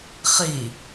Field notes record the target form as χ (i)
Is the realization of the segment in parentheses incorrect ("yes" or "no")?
no